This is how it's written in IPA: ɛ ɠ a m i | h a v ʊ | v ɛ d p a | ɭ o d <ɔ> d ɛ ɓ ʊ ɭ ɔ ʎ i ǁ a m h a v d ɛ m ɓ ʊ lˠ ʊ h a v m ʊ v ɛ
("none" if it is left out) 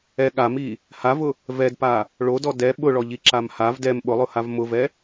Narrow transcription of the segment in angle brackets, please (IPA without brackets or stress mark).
ɔ